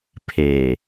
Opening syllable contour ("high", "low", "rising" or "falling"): low